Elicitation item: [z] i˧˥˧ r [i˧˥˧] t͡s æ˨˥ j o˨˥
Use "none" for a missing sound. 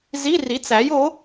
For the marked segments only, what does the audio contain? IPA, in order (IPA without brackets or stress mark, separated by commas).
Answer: z, i˨˥